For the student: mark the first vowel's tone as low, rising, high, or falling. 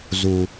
high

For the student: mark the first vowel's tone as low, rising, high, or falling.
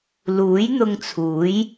rising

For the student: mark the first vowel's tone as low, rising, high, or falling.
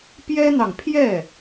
high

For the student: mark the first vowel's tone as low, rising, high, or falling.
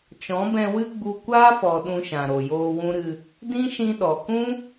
rising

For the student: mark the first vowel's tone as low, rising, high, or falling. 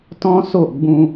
high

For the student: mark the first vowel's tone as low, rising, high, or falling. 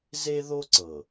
high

